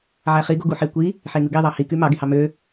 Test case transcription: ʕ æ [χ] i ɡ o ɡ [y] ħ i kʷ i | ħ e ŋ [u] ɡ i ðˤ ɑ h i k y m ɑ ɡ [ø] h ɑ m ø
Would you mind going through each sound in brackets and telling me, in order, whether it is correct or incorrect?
correct, incorrect: u, incorrect: ɯ, incorrect: e

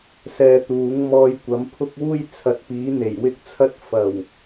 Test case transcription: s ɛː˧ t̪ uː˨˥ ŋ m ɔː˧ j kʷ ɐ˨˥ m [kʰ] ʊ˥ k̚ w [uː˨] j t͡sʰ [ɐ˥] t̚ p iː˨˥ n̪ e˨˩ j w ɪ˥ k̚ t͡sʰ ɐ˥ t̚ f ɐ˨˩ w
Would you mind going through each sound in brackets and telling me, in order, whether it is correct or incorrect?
incorrect: pʰ, incorrect: uː˥, incorrect: ɐ˨˥

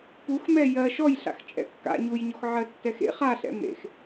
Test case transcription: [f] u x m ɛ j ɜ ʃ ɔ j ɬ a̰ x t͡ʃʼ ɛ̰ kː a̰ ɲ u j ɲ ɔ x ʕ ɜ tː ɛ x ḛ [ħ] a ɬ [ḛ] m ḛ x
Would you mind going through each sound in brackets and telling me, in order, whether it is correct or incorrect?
incorrect: p, incorrect: χ, incorrect: ɛ̰

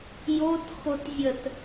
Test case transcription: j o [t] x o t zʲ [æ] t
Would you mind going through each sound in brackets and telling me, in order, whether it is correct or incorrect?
correct, incorrect: ə

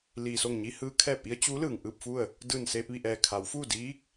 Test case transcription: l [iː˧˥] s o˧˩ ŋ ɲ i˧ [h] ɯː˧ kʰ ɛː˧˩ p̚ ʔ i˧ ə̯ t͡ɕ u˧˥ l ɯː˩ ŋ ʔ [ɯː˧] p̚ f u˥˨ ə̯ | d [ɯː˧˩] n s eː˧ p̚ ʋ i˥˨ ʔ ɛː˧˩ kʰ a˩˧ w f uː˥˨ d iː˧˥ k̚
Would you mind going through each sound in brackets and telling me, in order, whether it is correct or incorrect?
incorrect: iː˩, correct, incorrect: ɯː˥˨, correct

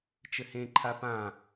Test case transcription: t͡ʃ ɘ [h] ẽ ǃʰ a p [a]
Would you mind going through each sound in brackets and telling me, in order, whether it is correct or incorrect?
correct, incorrect: ã

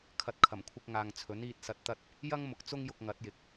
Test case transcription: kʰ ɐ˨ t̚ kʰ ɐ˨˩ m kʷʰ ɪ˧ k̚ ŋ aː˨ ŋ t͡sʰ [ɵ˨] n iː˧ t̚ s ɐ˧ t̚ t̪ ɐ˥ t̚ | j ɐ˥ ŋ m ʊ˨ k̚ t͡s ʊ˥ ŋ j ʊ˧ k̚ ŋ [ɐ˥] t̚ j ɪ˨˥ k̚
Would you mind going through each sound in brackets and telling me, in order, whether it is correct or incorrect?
incorrect: ɵ˨˥, incorrect: ɐ˨˥

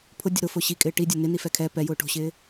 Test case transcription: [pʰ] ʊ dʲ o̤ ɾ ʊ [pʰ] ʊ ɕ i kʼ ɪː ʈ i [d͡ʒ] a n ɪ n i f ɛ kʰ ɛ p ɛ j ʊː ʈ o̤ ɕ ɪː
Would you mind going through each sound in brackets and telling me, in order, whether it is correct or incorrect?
correct, incorrect: f, incorrect: dʲ

